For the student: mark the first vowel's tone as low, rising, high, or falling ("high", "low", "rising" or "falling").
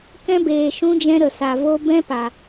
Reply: high